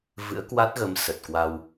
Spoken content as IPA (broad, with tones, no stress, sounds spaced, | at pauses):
v ɨ̰˧˥ ə̯ k w a˦˥ t̚ ɣ ə˨˦ m s ə˨˩ t̚ k w a˧ w